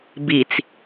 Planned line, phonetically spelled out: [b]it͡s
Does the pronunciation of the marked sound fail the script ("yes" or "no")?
no